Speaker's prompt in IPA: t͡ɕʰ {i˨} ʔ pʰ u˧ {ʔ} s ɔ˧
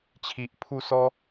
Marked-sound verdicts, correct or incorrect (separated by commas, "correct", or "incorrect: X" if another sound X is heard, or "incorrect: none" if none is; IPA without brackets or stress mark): correct, incorrect: none